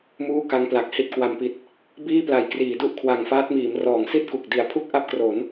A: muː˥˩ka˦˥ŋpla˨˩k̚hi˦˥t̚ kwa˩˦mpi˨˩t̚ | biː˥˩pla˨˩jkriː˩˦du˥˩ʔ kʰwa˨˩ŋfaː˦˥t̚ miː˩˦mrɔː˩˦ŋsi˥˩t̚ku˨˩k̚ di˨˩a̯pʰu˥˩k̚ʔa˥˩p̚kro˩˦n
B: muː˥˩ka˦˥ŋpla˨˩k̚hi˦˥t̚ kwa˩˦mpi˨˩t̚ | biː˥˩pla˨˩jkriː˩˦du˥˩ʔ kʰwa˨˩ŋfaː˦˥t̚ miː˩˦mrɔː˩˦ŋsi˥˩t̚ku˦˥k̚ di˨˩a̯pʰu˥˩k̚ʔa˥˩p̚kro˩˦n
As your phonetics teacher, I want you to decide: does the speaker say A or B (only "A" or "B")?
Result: A